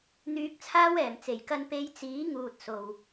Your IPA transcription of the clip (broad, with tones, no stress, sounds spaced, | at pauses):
n̪ yː˧ k̚ t͡sʰ aː˥ w ɛː˨˩ m t͡s e˨˩ j k ɐ˧ n p e˧ j t͡s iː˨˥ ŋ uː˨ t̚ s o˨ w